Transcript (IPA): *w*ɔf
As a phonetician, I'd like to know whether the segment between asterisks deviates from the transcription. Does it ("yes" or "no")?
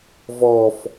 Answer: yes